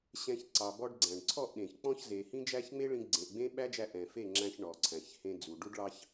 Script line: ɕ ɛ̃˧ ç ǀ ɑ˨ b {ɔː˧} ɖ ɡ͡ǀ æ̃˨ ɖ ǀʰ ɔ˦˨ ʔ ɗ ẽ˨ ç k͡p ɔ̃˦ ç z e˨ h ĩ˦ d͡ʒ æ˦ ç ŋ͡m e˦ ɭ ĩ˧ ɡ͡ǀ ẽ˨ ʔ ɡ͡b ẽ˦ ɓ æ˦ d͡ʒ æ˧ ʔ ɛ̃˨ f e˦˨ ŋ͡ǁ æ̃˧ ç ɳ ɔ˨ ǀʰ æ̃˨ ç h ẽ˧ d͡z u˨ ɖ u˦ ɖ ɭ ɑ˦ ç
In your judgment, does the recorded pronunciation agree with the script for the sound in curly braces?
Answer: no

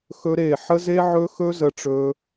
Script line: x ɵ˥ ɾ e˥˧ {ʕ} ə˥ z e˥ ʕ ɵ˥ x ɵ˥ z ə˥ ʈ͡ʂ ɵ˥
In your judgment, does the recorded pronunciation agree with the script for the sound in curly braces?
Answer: no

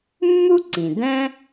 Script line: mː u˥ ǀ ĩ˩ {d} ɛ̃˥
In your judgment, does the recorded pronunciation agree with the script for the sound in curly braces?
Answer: yes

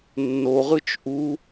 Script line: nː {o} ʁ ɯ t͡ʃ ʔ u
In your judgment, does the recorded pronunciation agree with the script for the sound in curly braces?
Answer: yes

